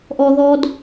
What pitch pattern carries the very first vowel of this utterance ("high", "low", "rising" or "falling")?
low